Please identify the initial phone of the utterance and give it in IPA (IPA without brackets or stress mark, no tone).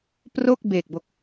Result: p